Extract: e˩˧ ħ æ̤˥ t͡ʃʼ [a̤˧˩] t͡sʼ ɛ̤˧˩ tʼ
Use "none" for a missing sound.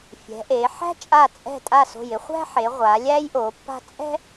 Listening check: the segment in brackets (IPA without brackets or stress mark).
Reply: a˧˩